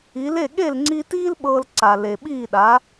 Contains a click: yes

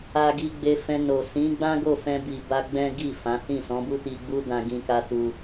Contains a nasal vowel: yes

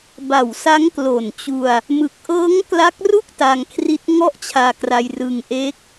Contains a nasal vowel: no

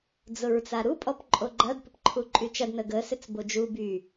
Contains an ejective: yes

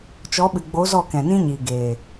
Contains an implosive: yes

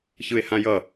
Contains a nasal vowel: yes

